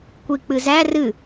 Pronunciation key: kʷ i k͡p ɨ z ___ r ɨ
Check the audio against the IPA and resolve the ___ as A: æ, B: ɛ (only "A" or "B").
A